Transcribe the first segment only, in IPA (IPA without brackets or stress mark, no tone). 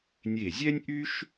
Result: nʲ